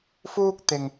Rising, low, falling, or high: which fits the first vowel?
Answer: high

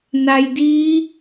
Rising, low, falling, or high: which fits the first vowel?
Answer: low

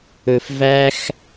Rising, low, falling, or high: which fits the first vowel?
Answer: low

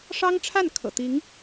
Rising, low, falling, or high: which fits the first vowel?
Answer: high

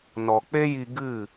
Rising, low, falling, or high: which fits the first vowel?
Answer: low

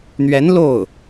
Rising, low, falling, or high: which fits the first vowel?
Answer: rising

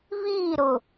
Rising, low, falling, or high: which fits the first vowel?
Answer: falling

